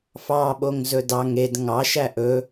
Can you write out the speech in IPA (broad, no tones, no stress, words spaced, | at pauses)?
fɑɓoŋzɵ dɑŋ ed ŋɑʃæ ʔɵ